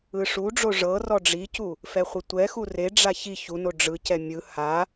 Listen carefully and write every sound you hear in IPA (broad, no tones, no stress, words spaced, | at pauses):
ɯʂuɖ͡ʐo ʐɤ rɔɖ͡ʐicu | fɛχʷɯtʷɛxu reɖ͡ʐa çi çuno ɖ͡ʐɯcɛ mʲɯ ha